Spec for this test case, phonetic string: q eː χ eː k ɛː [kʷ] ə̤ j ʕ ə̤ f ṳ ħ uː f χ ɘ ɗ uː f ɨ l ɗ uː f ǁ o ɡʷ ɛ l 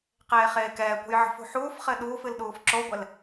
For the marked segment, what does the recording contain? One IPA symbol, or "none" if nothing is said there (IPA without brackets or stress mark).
kʷ